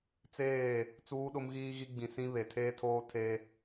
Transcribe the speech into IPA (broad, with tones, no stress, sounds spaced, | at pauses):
t͡s eː˦˨ | t͡s uː˦ ɗ ʊ˦ m ɣ iː˦ ɣ i˦ ɡ͡b ĩ˨ s ĩ˦ β e˨ tʰ eː˦ tʰ oː˦ tʰ e˦